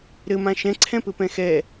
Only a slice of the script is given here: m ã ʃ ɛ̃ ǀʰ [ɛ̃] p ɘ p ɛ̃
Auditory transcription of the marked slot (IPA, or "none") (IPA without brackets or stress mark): ɛ̃